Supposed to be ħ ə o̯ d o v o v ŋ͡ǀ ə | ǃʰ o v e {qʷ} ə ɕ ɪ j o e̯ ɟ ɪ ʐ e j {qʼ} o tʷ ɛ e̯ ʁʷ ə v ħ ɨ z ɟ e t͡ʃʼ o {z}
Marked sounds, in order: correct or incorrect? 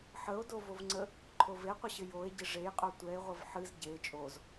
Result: correct, correct, correct

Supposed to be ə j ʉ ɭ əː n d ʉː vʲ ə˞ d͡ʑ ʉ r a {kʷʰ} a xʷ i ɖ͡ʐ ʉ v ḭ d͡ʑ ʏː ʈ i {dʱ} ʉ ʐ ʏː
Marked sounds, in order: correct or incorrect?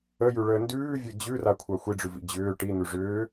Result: correct, incorrect: n̪

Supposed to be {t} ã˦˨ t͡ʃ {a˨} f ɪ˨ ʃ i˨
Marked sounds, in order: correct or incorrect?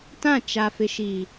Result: correct, correct

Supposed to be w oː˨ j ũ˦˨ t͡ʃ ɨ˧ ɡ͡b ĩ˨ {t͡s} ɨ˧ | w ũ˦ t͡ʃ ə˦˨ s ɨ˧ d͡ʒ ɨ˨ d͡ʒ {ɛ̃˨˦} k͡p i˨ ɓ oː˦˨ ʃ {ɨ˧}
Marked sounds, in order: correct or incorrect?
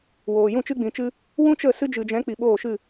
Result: incorrect: t͡ʃ, correct, incorrect: ɨ˦˨

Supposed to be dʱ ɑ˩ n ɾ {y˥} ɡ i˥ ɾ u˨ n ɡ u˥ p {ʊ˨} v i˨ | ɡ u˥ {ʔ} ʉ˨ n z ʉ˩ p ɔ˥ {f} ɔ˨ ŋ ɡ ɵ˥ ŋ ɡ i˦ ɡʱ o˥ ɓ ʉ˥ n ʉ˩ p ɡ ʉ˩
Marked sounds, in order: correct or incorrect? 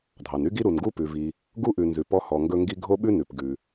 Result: correct, incorrect: ʉ˨, correct, incorrect: h

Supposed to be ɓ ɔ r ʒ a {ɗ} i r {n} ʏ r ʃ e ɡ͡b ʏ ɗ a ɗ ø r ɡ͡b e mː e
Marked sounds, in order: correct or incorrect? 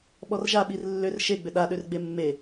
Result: incorrect: ɓ, incorrect: lː

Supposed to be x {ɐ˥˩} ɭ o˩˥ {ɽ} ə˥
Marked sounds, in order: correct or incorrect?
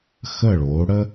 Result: incorrect: ə˥˩, correct

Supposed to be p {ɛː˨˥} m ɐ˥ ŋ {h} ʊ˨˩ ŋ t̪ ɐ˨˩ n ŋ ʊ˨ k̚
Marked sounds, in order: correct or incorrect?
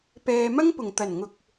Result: incorrect: ɛː˨, incorrect: p

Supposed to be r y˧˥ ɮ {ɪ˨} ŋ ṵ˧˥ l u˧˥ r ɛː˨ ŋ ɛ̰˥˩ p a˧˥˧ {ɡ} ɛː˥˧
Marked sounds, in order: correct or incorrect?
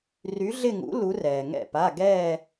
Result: incorrect: ɪ˥˧, correct

